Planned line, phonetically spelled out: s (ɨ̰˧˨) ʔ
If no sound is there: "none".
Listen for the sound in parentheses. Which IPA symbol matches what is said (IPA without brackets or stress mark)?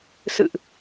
ɨ̰˧˨